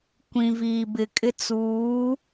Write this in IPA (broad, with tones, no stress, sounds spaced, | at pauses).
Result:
kʷ ĩ˨ v iː˨ b ɪ˨ kʼ ɪ˦ t͡s uː˨˦